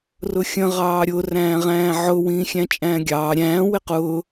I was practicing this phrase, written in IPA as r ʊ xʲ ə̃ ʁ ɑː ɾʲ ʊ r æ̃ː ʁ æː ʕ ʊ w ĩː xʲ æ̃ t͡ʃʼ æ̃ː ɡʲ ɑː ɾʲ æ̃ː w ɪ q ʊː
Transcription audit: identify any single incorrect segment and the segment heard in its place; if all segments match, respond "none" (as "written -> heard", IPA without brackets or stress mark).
æː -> æ̃ː